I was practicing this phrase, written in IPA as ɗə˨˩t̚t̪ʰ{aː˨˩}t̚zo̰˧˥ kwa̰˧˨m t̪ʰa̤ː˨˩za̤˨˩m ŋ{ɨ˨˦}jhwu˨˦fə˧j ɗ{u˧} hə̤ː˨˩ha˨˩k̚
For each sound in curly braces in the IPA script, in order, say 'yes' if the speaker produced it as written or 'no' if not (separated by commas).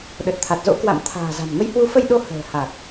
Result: no, no, no